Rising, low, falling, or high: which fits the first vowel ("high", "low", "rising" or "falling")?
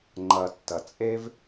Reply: low